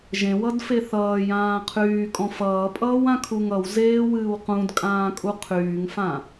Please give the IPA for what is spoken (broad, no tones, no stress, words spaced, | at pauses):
ʒẽwʌdfe θʌːjãː qʰyːkʼɔ̃ fʌːpʼʌːwãkʰuŋ ʌwzeːwɨːw qũdkʼãːkʼu qʰyːŋfã